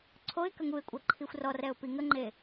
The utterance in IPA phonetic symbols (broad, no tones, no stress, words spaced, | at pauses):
ǀʰoɪ̯ kəŋuɪ̯kʷʼa ǃʰixʷrɔrɛʊ̯ piŋəŋ͡ǃe